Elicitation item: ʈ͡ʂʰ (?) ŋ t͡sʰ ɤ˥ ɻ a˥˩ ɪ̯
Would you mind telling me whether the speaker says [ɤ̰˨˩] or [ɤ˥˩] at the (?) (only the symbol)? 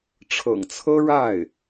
ɤ̰˨˩